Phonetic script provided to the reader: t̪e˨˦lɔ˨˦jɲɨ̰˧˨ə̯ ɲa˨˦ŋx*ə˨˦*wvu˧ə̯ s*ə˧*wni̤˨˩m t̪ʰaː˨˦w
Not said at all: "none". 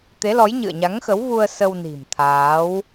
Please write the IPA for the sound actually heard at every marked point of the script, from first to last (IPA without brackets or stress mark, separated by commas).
ə˨˦, ə˧